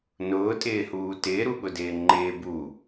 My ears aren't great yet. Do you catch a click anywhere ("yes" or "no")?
yes